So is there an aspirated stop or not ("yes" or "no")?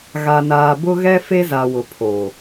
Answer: yes